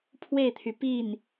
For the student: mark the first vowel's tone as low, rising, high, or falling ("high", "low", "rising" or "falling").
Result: falling